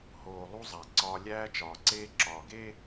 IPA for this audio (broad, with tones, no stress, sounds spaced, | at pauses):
h oː˨ lˠ u˦ zˤ æ˨ ǀ ɒː˦ lʲ æː˦ t͡ʃ ɒː˨ ǀ eː˦ ǁ ɒː˨ ɡ e˦